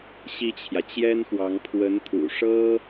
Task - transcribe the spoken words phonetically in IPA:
ɕ i˥˩ t͡ɕʰ j ä˩ t͡ɕ j ɛ˥ n x w ɑ˧˥ ŋ pʰ w ə˧˥ n t̪ʰ ṵ˨˩ ʂ ɤ˥

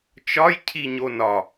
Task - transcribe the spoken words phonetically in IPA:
t͡ʃ ɒ j cʰ i ɲ o n ɒ

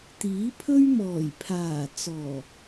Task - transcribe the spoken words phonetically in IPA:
t̪ iː˨˥ pʰ ɵ˥ ɥ m ɔː˨˩ j pʰ aː˨˩ t͡s ɔː˨˩

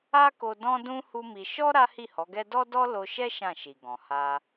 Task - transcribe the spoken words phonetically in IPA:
a˦ k o˧ d ɔ̃˦ d ũ˦ h u˦ m i˧ ʃ ɔ˦ ɾ a˦ h i˦˨ h ɔ˨˦ ɡ ɛ˦ d ɔ˦ d ɔ˦ l o˧ ʃ ɛ˦ ʃ ã˦˨ ʃ i˨ ɡ ɔ̃˨ h a˧

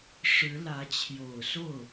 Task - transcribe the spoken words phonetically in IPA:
ʂ ɻ̩˧˥ l ä˧˥ t͡ɕʰ j o˨˩ ʊ̯ s o˥˩ ʊ̯

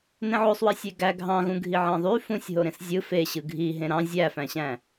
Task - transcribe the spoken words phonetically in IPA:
n ẽ ʕ o sˤ w i sʲ e ɡ æ ɡʱ ɑ̃ ɣ ũ ɡʱ i ʕ ɑ̃ ðˤ y f ũ sʲ ɦ o ɾ ẽ s zʲ ɯ f e ɕ ɯ ɡʱ i ɦ ẽ ɾ ɑ̃ zʲ æ f æ̃ ɕ æ̃

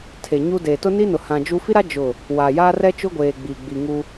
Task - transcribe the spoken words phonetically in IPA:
tʰ e˨ ɲ u˦ d e˨ t ʊ˦ n i˦ n ʊ˨ h ã˨ d͡ʒ u˦ f i˦ ɾ a˦ d͡ʒ ʊ˦˨ | w a˨ j aː˦ r ɛ˦ t͡ʃ ʊ˦ ɡʷ eː˨ ɡ͡b i˨ ɡ͡b i˨ ŋ u˦

